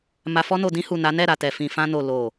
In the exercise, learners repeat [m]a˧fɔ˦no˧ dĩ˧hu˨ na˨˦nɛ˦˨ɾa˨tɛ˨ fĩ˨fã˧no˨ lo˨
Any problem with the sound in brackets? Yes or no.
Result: no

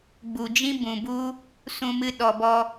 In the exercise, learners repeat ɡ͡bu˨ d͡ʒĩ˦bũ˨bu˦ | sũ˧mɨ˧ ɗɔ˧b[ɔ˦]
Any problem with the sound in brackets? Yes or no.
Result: no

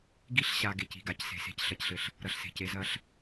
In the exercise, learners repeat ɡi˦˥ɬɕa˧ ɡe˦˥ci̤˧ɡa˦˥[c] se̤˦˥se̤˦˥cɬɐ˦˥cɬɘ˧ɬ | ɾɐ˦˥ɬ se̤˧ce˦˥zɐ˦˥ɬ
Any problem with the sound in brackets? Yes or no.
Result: no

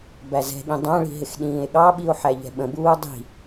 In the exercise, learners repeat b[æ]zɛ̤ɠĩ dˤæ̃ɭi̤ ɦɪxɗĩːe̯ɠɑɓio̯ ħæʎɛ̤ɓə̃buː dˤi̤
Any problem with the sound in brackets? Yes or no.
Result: no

